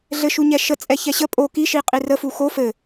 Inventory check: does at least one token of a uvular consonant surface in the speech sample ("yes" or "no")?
yes